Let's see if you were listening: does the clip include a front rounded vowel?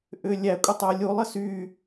yes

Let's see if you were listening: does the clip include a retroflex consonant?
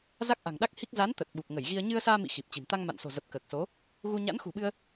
no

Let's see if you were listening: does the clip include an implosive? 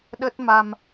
yes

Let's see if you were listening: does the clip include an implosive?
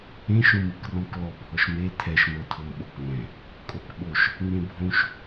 yes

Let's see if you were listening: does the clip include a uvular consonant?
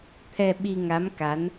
no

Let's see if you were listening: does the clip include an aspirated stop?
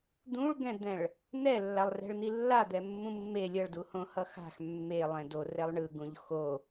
no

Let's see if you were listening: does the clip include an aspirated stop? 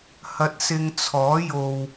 yes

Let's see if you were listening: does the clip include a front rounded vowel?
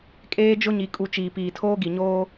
no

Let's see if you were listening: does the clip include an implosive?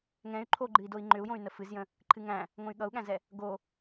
yes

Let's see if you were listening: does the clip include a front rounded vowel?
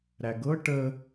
no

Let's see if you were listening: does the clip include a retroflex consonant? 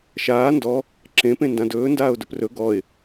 no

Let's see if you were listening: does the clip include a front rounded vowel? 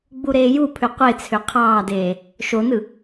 yes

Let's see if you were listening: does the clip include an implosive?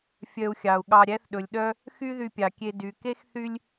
yes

